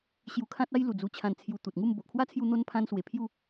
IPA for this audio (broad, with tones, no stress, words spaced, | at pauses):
ɕju˧kʰã˦t̚a˦j lu˨˩d͡zu˧t͡ɕʰã˧n t͡sʰju˧ t̪u˨t̚ŋu˥˧m bo˨ʔkʰwa˦t͡sʰju˧ n̪o˦npʰã˦nswe˧ pʰju˥˧